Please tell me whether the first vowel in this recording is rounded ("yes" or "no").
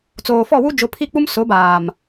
yes